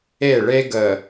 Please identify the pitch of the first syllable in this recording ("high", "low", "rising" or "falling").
falling